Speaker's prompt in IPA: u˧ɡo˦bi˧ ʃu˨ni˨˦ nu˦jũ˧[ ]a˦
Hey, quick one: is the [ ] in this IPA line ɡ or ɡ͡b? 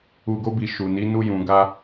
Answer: ɡ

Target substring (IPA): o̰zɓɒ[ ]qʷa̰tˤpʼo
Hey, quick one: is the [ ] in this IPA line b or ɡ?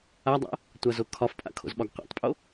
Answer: ɡ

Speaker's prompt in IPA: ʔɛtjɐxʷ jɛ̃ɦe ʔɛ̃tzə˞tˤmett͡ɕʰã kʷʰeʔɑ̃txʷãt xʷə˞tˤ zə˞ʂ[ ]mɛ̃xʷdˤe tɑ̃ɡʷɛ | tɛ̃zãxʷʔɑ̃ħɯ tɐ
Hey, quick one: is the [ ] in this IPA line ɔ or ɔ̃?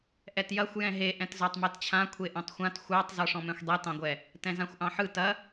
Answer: ɔ̃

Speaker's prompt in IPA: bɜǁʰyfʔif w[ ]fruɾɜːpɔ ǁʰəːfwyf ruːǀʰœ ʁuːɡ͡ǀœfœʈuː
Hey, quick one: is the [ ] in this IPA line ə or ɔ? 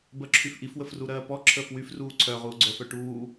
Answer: ə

